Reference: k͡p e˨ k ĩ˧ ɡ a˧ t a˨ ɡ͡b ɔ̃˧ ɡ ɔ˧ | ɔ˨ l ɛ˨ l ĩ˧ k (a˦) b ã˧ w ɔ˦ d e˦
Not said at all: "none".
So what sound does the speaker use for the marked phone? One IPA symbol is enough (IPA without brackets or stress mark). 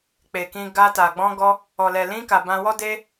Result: a˨